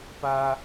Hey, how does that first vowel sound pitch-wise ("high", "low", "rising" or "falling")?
high